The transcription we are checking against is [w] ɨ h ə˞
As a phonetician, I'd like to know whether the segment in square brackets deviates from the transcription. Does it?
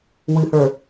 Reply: no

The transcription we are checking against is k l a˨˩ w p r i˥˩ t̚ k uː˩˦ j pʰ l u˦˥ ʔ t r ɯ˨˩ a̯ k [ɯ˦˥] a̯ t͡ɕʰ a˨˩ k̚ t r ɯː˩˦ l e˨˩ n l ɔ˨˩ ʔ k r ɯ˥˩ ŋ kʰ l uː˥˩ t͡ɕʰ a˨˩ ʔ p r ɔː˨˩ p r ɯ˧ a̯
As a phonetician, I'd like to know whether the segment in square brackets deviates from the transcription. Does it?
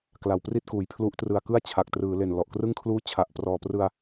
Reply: yes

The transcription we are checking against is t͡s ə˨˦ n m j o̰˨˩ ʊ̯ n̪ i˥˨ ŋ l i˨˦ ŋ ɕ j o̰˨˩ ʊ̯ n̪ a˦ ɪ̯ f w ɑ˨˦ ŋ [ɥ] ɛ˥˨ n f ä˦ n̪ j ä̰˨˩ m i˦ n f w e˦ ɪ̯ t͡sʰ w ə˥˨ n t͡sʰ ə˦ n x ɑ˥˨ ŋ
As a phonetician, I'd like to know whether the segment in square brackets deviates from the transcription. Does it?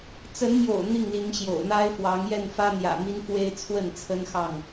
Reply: yes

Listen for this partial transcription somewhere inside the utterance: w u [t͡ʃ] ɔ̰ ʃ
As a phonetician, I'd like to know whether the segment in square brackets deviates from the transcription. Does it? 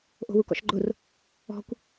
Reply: yes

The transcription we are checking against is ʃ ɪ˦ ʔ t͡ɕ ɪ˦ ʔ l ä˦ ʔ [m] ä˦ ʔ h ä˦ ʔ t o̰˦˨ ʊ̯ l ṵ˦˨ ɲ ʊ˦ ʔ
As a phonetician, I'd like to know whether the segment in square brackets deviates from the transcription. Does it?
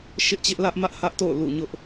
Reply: no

